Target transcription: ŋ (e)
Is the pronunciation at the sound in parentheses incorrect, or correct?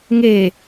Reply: incorrect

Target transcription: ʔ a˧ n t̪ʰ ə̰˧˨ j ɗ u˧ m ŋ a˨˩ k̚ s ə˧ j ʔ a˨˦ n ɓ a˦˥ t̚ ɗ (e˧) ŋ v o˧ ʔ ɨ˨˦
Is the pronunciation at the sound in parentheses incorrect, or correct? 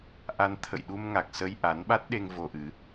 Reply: correct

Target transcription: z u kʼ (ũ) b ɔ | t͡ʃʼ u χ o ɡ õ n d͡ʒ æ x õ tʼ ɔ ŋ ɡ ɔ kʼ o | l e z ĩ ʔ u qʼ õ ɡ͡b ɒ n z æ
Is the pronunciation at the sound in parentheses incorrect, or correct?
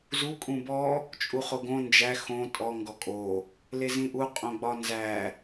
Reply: correct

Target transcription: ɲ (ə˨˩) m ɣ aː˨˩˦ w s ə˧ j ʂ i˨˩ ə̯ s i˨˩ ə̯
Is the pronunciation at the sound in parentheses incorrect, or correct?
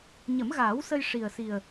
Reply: incorrect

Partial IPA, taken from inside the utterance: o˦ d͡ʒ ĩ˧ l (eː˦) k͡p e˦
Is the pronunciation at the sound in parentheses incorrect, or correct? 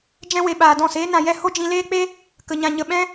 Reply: correct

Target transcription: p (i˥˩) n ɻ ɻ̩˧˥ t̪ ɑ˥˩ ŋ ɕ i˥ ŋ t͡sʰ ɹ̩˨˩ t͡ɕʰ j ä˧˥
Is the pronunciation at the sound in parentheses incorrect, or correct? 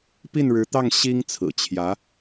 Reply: correct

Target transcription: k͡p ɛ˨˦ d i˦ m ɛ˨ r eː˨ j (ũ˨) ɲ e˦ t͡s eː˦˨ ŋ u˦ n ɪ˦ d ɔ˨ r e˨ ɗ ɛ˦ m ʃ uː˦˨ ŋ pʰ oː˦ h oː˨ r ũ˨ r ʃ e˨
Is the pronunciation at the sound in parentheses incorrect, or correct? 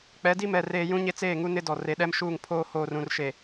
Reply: incorrect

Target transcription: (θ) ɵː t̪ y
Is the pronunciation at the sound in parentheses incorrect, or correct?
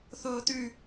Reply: correct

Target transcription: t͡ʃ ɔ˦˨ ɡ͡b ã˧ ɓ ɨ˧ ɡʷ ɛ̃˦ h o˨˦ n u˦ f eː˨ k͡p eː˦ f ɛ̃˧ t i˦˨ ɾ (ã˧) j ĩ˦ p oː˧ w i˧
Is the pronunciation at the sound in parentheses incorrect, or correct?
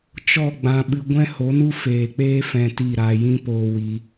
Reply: incorrect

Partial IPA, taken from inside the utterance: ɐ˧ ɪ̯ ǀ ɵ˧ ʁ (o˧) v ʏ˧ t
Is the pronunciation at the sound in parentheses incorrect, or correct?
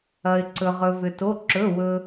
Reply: incorrect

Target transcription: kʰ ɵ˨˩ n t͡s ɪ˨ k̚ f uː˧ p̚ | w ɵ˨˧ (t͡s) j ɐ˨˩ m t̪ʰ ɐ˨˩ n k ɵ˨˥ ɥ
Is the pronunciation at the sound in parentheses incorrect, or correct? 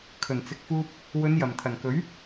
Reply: incorrect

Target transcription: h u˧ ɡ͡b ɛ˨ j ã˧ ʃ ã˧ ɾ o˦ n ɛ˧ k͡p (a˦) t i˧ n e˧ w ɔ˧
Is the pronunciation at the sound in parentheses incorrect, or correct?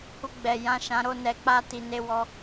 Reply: correct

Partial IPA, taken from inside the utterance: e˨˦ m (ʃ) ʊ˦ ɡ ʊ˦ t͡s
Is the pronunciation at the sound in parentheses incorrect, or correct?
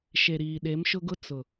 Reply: correct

